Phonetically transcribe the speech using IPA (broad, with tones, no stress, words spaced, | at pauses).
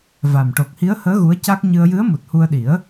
va˨˩m ʈo˨˩k̚hi˧˥ə̯həː˧˥ ɣu˧˥ə̯ca˦˥k̚ ɲɨ˧ə̯ jɨ˧˥ə̯mu˨˩t̚hu˧ə̯ɗi˨˩˦ə̯